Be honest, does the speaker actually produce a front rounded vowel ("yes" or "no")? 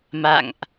no